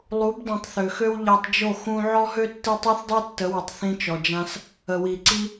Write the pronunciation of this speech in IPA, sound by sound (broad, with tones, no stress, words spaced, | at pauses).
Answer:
lˠu˨˦bdˤũ˨tˤ θø˨xø˦w ʎa˧tˤd͡ʒo˦˨ xũ˧ʕɔ˦ɦø˦ tːi˧tˤɛ˦θ dˤi˦tːə˨˦wə˨tˤ θĩ˧t͡ʃɔ˨d͡ʒã˧s | ə˨wi˨ǀi˧